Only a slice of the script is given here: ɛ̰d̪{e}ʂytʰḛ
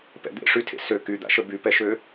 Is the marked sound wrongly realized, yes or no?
yes